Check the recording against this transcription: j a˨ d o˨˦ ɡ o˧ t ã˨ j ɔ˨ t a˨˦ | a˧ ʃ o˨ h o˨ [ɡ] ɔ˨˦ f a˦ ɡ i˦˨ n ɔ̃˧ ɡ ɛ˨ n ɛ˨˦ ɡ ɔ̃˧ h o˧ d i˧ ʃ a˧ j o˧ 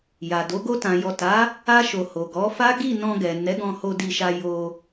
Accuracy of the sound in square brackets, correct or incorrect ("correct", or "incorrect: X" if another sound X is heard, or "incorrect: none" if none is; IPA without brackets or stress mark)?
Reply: correct